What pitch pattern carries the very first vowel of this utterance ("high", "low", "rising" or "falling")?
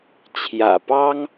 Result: low